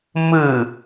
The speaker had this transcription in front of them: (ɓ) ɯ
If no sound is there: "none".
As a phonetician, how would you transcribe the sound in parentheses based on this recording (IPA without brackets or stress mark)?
m